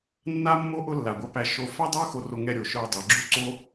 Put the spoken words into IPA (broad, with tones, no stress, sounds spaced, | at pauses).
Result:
nː a˥ mː o˥ ʔ ʊ˥ lː a˩ ɡʷ a˧ p æ˧ ʃ o˧ f æ˥ dˤ ə˞˥ x o˧ r o˧ ŋ ɛ˧ ɾʲ o˩ ʃ ə˞˧ dˤ ɛ˩ ɡ͡ǁ u˥ ǀ o˥